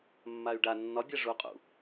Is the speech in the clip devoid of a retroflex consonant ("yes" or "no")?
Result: no